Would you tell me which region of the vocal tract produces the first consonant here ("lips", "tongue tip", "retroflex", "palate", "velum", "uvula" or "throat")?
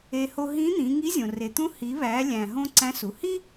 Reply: throat